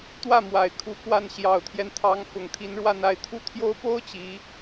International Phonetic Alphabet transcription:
t̪wä˥˩ mwa˨˩ɪ̯kʰu˧˥kwa˥˩n ɕjɑ˨˩ʊ̯t̪ʰjɛ˦nt̪ʰɑ˧˥ŋ fʊ˨˩ŋt̪ʰi˧˥nɻwa˥˧n a˥˩ɪ̯t̪ʰu˥t̪ʰjo˥ʊ̯ po˥ʊ̯ t͡ɕi˧˥

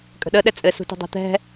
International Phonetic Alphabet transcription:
kʼə̤ɗə ɗɛt͡sʼɘsṳtṳ dˤɛ̤t̪ɛ̤

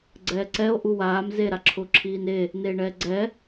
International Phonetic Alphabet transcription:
ɡ͡ǀɛːǀɛo̯ ʔuwaːm ze ɾaǁʰʊːǁʰiːne | neːɳɛːɡ͡ǀɛ

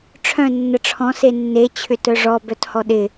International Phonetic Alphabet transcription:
ʈ͡ʂʰœ̃ nːəʈ͡ʂʰɔ̃ senːe t͡ɕʰʏtœʐɔ bœthɔɗɪ

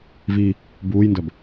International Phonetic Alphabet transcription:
vi | buːjndœb

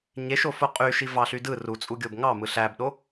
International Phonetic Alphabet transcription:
ɲeʃofo qʼyʃi vɑɬydɯ rut͡sʼuɡʲob ŋɑmɯ ɬæbɗo

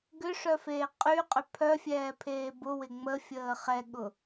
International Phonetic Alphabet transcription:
ɡʏʂœfeː qʼyqʼø pʰœfʲɛːpʰeː bʊwɪ ŋ͡məfʲəː χɛɠʊ

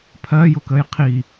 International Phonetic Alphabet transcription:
pʰɜjʊkəj qʰi

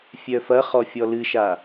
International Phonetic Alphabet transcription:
fʲœfɐχɔ fʲɔlɨʃa

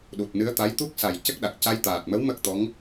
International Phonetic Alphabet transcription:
ɗu˨˩t̚nɨ˧˥ə̯t̪a˧˥j t̪u˦˥k̚sa˨˩j cə˦˥k̚ɗa˨˩k̚ ca˧jt̪aː˨˩t̚mə˧˥w mə˦˥k̚t̪ɔ˧˥ŋ

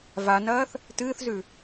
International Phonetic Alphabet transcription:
vanɐːθ | tɨːθzʉ

